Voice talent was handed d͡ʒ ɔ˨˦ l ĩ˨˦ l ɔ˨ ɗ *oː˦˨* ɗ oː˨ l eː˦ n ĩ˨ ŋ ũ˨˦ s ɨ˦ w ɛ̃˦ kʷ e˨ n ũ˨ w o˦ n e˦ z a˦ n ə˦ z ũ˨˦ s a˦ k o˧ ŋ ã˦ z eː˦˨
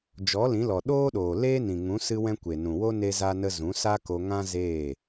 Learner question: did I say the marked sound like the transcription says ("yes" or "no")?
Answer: no